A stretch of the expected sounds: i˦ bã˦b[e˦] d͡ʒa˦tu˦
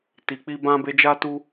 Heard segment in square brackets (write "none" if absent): e˦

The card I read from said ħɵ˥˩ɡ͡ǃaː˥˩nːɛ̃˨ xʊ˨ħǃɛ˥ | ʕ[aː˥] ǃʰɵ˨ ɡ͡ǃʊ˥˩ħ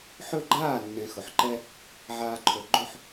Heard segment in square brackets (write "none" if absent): aː˥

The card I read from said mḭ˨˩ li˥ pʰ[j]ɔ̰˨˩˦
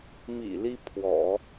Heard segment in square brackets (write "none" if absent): w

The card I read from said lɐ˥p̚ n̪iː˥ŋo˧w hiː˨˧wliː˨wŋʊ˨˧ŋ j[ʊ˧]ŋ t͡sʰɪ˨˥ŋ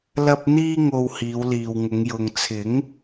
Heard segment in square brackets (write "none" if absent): ʊ˨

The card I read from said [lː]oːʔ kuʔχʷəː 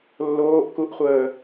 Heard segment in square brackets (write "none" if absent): lː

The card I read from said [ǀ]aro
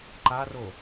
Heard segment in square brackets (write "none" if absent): ǃ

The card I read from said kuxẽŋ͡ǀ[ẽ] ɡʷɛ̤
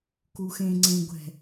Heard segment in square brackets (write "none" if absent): ẽ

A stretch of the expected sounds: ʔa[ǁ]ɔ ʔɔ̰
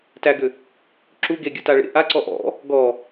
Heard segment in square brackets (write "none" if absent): ǀ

